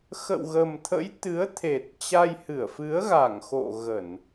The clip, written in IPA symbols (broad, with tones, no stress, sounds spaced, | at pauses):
x ə̰˧˨ w ɣ ə˨˩ m t̪ʰ ə̰˧˥ j t̪ ɨ˨˦ ə̯ t̪ʰ e˨˩ t̚ t͡ɕ a˧ j h ɨ˧˩ ə̯ f ɨ˨˦ ə̯ ɣ a˧˩ ŋ x o̰˧˨ ɣ ə˧˩˨ n